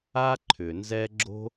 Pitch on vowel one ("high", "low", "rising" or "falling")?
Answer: high